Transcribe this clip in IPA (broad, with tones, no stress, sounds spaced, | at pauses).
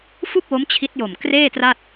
f u˥˩ k̚ w o˦˥ m t͡ɕʰ i˦˥ t̚ j o˨˩ m k r eː˥˩ t r a˥˩ t̚